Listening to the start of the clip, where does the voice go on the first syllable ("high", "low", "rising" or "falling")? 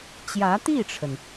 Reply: rising